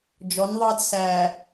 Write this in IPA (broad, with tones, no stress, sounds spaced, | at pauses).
d͡ʒ ɔ˨˦ n ðˤ ɑ˦ d s æ˨